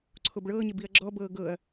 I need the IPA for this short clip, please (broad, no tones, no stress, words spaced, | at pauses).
ǀʰobɭɤːɲeb iɐ̯ɡ͡ǁɔbɤː ɡɤɐ̯